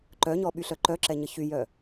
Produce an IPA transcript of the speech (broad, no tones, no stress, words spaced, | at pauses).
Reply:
ǃœɲɔɓyɬœ ǃœǁɛɲə çyjœ